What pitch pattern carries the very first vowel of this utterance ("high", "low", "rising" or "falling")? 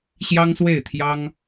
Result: high